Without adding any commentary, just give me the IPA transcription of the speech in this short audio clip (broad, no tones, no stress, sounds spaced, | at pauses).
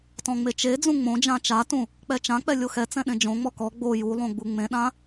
t ɔ̃ ŋ͡m e t͡ʃ e d͡z ũ ŋ͡m õ d͡ʒ ã t͡ʃ a t ũ | k͡p ɛ t͡ʃ ã k͡p ɛ lʲ o x ɛ t͡s ɛ̃ ɗ ẽ d͡ʒ õ ŋ͡m ɔ k ɔ ɡ͡b o j u lˠ õ ɡ͡b u ŋ͡m ẽ ɗ ã